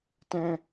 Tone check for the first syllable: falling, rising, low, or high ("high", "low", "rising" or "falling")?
high